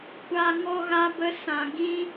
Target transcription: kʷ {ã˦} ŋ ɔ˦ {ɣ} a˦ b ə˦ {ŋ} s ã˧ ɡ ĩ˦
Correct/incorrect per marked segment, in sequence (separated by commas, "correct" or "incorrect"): incorrect, correct, incorrect